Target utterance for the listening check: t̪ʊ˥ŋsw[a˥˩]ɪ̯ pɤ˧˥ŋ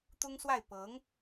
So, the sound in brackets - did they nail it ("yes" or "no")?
yes